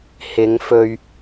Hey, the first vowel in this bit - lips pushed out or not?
no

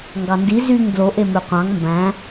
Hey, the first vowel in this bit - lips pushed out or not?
no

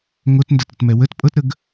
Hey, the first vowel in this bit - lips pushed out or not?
yes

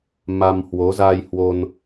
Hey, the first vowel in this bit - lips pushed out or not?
no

